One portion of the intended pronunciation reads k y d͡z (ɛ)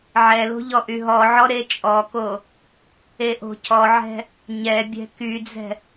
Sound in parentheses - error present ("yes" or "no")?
yes